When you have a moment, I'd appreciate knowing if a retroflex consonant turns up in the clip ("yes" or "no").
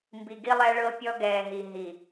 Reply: yes